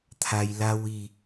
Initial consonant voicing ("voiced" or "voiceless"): voiceless